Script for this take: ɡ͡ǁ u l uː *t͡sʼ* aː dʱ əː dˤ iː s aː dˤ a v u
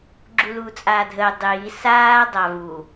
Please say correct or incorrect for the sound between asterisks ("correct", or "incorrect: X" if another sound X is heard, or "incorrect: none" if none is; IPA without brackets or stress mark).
correct